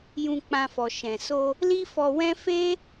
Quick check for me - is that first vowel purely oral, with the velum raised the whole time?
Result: no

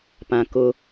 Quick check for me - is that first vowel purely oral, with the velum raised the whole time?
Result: no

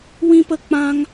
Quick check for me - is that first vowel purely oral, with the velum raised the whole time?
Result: no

